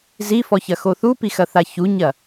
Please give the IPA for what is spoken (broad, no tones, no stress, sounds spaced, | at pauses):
z i f ɔ ç ɐ x o θ u p i x ɐ θ a ç u ɲ ɐ